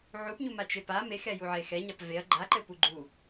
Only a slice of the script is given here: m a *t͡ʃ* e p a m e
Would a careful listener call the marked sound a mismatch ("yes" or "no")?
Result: no